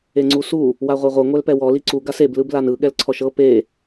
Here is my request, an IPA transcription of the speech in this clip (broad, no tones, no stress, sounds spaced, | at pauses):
e ŋ͡ǀ u s u | w a ʁʷ e ʁʷ ɤ ŋʷ ɛ l p ɛ w ɔ l i ǀ u ɡ a s e b l ɯ b l a n ɯ ɠ ɛ l ǀʰ ɔ ʃ ɤ p e